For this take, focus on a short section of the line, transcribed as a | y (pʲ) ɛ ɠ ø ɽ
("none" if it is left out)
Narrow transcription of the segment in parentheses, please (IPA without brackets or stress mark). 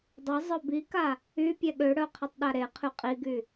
pʲ